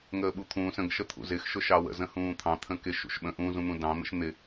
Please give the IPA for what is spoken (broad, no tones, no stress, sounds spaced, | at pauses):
ŋ əː ɓ u t̪ʰ ũː s ə̃ ɡ ʃ ə t̪ʰ ṵ z ɪ x ʃ ʊ ʃ ɑ w ə̰ z ə̃ h ũː t̪ʰ ɑ̃ t̪ʰ ə̃ k ɪ ʃ ṵ ʃ ɓ ə̃ ʔ ũ z ũ n̪ ũ d ɑ̃ n̪ ə̰ ʃ n̪ ɪ